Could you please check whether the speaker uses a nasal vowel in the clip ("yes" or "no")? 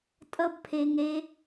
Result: no